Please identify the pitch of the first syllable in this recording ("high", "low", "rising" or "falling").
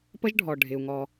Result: high